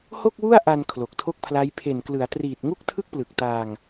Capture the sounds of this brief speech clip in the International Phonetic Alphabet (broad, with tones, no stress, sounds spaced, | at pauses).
h o˥˩ k̚ w u˥˩ a̯ ʔ a˧ n kʰ l o˨˩ k̚ tʰ o˥˩ k̚ pʰ l a˦˥ j pʰ e˨˩ n k l ɯ˩˦ a̯ t r iː˨˩ t̚ ŋ u˥˩ k̚ tʰ ɯ˥˩ k̚ p l ɯ˨˩ k̚ t aː˧ ŋ